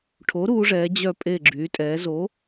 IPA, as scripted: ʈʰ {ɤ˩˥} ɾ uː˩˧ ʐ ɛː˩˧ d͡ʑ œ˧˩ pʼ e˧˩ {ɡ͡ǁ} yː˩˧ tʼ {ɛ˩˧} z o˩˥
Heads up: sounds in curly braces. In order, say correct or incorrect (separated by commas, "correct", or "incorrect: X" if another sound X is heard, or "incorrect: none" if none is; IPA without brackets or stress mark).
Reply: incorrect: o˩˥, correct, incorrect: ɛː˩˧